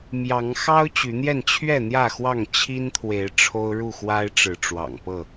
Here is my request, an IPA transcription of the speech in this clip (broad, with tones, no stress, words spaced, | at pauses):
mjɑ˨˦ŋ xɑ˦ʊ̯ t͡ɕy˨˦n̪jɛ˥˨n t͡ɕʰɥɛ˥˨n̪jä˥˨xwɑ˥˨ŋ t͡ɕʰi˦nt̪ʰwe˨˦ɪ̯ ʈ͡ʂʰo˦ʊ̯ɻu˥˨xwa˦ɪ̯ʈ͡ʂɻ̩˨˦ ʈ͡ʂwɑ̰˨˩ŋpɤ˥˨